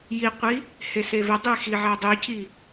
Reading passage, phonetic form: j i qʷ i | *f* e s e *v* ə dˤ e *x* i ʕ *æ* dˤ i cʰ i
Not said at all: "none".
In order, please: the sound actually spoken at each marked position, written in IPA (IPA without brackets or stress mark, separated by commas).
h, v, x, æ